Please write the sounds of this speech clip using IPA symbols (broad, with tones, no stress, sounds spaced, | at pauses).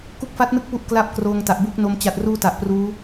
k u˦˥ k̚ f a˦˥ t̚ n ɯ˦˥ k̚ p u˥˩ ʔ k l a˥˩ p̚ k r oː˧ ŋ t a˨˩ ʔ b u˦˥ k̚ n o˧ m t͡ɕ a˨˩ t̚ r uː˧ t a˨˩ ʔ p r uː˦˥